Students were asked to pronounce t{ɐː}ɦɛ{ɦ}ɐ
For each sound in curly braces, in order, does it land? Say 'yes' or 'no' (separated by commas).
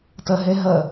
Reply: no, yes